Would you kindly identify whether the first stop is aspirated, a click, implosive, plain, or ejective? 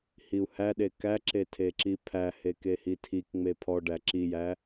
implosive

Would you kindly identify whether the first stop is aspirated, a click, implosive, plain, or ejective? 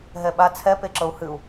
implosive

